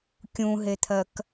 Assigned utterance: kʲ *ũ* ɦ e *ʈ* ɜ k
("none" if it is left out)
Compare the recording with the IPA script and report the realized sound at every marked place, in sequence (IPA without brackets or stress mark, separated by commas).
ũ, t̪ʰ